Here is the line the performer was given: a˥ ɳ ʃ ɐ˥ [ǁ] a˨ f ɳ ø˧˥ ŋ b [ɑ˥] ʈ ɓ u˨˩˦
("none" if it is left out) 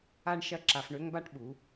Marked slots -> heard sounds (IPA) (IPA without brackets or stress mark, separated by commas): ǁ, a˥